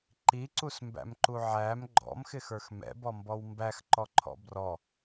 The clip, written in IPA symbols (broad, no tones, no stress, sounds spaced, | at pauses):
ǃ i ǀ u s m b æ̰ m ǃ u ʕ æ m ɡ͡ǃ ɔ̰ m x ɪ x ə˞ x m ɛ̰ b ɔ m b ɔ w m b æ x ǃ ɔ ǃʰ ɔ̰ b r ɔ